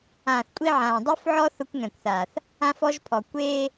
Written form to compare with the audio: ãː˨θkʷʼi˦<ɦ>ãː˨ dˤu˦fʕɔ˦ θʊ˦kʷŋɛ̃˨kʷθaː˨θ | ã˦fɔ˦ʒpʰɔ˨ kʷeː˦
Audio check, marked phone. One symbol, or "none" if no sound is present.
ʕ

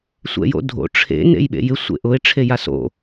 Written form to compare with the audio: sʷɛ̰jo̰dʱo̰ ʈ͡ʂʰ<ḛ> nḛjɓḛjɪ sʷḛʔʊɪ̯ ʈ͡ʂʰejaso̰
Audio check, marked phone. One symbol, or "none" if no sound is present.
ḛ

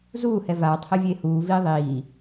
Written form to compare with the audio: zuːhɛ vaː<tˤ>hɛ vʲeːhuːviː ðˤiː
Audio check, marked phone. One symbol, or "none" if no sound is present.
tˤ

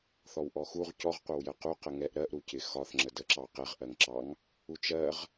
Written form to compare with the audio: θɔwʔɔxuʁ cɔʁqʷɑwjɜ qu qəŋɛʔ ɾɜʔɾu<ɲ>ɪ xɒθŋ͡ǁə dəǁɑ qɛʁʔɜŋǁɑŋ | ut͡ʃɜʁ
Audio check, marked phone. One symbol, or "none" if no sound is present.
c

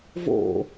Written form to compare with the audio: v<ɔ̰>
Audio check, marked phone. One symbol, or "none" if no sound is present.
o̰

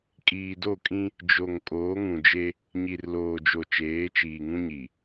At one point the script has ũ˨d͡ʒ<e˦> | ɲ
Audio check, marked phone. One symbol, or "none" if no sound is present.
e˦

